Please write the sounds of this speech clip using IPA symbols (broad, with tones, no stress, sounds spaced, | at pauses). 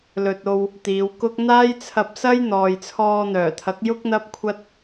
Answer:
l ɵ˨ t̚ o˧ w | t̪ iː˨˧ w k ʊ˥ k̚ n̪ aː˥ j t͡sʰ ɐ˧ p̚ s ɐ˥ j n̪ ɔː˨ j t͡sʰ ɔː˧ n̪ œː˨˩ t̪ʰ ɐ˨˥ k̚ j ʊ˥ k̚ n̪ ɐ˥ p̚ kʷʰ ɐ˥ t̚